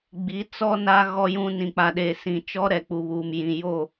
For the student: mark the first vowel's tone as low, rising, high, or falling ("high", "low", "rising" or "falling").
rising